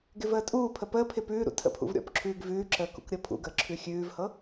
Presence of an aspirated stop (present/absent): present